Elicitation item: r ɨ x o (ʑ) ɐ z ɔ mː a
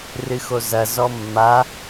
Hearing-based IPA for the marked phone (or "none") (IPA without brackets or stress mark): z